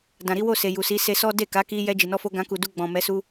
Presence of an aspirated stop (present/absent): absent